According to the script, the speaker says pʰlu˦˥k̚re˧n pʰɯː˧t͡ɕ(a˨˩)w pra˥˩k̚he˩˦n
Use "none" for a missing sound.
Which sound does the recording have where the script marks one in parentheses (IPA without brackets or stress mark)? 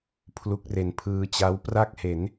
a˦˥